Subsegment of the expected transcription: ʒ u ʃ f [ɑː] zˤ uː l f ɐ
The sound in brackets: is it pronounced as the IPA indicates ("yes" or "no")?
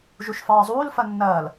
yes